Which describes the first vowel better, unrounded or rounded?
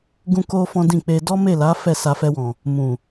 rounded